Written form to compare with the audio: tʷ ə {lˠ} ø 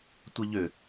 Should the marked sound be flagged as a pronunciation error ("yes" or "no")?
yes